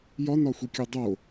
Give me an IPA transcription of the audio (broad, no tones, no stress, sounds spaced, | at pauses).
j ɒ n ɒ xʷ i kʲ u dˤ o